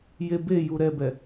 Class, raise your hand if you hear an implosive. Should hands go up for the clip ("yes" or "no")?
no